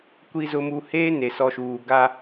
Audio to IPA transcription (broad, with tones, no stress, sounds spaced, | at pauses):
kʷ i˨ z ʊ˨ m u˨ h eː˦ n e˨ s ɔ˨ ʃ uː˨ ɡ a˦